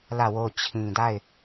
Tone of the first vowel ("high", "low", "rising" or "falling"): falling